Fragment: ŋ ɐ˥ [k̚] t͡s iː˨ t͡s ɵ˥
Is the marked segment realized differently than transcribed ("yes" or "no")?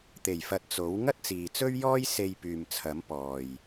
yes